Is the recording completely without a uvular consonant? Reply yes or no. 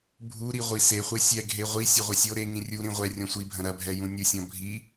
no